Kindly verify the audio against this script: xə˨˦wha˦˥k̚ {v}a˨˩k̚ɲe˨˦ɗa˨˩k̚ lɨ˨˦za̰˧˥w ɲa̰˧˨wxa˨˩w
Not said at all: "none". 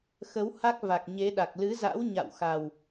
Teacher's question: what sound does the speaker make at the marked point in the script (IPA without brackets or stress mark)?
v